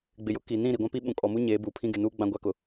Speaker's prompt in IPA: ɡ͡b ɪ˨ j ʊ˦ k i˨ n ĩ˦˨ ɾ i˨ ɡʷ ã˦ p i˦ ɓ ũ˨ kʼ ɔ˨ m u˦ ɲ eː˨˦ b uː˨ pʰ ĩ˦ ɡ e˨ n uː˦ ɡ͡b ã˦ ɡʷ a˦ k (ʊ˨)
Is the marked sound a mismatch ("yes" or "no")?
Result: no